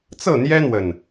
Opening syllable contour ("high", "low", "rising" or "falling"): falling